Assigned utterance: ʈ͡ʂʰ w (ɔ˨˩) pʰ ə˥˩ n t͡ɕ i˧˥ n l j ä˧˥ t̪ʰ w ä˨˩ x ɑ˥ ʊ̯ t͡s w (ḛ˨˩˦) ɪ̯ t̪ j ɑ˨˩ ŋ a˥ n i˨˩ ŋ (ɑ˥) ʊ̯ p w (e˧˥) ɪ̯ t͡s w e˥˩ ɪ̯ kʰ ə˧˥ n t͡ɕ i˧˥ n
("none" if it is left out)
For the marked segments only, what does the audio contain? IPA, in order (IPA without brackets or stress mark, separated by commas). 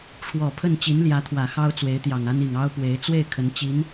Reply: ɔ˨˩, e˧˥, ɑ˥, e˧˥